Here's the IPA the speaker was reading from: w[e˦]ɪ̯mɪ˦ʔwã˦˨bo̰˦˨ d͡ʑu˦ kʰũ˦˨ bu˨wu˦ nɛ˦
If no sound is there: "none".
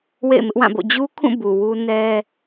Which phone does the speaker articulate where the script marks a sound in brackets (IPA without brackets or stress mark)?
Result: ḛ˦˨